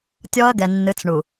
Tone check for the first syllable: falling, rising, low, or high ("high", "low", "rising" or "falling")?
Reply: high